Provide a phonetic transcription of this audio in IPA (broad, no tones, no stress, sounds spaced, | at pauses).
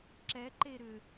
ǁ ɛ ǃ e ɾ ʏ